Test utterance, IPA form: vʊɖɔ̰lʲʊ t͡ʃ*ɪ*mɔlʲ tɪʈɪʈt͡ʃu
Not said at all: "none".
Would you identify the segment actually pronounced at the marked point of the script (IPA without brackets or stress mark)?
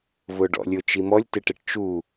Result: i